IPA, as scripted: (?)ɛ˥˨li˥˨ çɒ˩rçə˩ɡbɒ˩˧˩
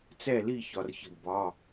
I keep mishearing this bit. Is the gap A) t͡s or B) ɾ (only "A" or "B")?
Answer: A